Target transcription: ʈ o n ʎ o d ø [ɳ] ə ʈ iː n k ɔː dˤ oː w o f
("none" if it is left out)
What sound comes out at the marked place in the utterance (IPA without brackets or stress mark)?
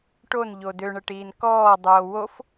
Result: ɳ